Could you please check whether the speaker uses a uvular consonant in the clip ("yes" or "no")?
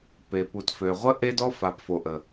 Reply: yes